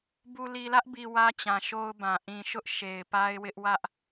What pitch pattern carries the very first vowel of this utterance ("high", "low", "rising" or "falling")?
low